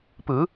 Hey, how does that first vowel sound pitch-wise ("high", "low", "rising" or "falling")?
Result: rising